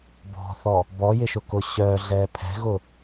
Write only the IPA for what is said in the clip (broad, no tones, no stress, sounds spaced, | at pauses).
b ɔ̤ θ ɔ | b ɔ j ɪ ʃ ʊ k ʊ ɕ œː ɮ ɛː pʰ ɛ̤ ɣ ʊ